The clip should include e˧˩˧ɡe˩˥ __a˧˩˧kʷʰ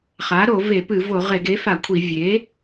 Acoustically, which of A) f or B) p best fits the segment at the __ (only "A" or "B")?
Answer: A